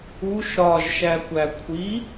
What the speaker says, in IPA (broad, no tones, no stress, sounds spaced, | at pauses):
u ʃ ɾ ɒ ʒ ʃ æ kʷ æ kʷʰ i